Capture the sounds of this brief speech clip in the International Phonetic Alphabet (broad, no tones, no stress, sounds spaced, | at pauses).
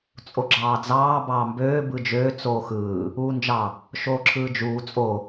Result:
t͡sʼ o ɡ͡ǁ ɑː d͡z ɑː b ɑː m b øː b ɯ d͡ʒ øː t͡s oː x ɯː | uː n d͡ʒ ɑ | ʃ oː ǁʰ ɯː d͡ʒ uː t͡sʼ o